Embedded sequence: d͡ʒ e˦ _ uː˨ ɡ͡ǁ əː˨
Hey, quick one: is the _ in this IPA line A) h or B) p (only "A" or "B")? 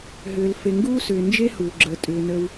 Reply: A